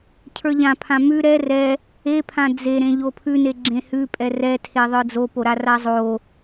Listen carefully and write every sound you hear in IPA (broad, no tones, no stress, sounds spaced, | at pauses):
cʰ ə˞ ʎ ã pʰ ã m ʉ ɾ ɛ r ɛ | e pʰ ã d͡z e ɾ ẽ ʎ o pʰ ʉ n e ɡ͡ǁ ẽ h ʉ pʼ ɛ r ɛ tʰ e ðˤ ə˞ d͡z o p o ɾ a r a zˤ o